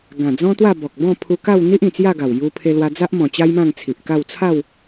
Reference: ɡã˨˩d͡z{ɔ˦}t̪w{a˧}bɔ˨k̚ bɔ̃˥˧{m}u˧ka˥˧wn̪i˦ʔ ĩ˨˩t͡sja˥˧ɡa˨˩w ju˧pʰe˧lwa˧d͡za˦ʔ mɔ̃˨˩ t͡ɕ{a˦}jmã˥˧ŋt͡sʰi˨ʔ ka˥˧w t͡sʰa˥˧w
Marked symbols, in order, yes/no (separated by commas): no, no, no, yes